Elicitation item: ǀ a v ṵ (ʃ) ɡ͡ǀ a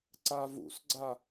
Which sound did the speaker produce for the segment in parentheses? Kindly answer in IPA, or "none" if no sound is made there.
s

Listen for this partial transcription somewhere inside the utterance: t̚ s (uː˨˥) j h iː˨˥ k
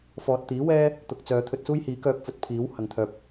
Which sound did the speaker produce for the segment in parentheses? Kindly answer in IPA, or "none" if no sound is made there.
uː˥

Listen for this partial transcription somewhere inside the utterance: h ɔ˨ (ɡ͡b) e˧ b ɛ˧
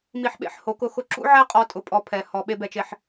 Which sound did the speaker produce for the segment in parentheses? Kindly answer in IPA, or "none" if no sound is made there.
ɓ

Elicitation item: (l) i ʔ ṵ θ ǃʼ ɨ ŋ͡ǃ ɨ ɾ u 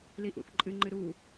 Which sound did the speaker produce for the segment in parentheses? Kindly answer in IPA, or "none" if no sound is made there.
l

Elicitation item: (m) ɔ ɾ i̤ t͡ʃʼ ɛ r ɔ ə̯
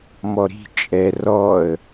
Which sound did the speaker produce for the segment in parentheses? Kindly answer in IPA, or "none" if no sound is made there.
m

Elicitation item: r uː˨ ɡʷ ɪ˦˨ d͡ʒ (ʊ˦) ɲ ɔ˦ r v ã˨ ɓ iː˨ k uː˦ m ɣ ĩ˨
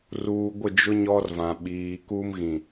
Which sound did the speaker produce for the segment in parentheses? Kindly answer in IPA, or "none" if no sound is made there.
ʊ˦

